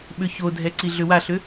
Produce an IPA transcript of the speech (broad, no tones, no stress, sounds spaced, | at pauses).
ɓ ʏ ç o dʱ ɛ ǀ i ɮ ʏ w a ɬ ʏ